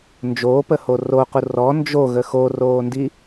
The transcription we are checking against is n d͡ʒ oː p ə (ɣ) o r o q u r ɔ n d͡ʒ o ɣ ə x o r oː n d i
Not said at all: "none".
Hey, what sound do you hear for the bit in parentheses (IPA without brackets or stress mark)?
h